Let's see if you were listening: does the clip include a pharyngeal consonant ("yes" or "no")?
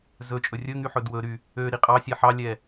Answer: yes